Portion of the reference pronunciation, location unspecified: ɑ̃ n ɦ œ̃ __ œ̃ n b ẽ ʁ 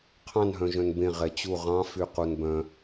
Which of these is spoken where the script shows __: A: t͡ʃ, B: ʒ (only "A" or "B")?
B